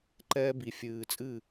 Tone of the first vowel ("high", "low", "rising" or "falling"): high